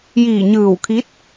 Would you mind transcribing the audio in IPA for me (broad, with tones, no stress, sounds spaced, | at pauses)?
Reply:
j iː˧˩ ɲ ɯː˧˩ w kʰ i˧˥ t̚